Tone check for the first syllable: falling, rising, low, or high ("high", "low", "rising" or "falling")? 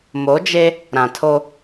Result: rising